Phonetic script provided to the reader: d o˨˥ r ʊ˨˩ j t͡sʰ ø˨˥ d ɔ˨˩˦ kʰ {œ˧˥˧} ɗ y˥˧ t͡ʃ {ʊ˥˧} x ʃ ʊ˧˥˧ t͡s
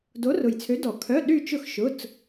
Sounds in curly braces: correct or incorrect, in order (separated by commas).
correct, correct